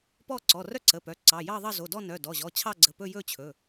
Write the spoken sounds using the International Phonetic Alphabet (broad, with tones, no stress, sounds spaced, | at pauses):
p ɔ˥˧ ǀ ɔ˩˧˩ r œ˥˧ ǀ ə˩˧˩ p œ˩˧˩ ǀ ɑ˩˧˩ j ɑ˥˧ ðˤ ɑ˥˧ z o˩˧˩ d ɔ˥˧ n œ˩˧˩ d ɔ˩˧˩ ʑ ɔ˩˧˩ t͡ɕʰ ɑ˥˧ ɡ͡ǀ ə˩˧˩ p ɵ˥˧ j ɵ˥˧ t͡ɕʰ ɵ˩˧˩